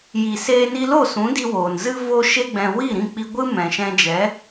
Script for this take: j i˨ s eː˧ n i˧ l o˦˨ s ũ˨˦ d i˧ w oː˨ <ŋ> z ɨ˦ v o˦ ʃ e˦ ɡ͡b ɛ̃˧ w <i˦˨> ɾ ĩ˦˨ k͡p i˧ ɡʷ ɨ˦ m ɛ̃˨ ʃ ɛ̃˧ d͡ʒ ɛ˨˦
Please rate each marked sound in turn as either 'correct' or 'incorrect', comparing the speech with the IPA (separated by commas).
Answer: incorrect, correct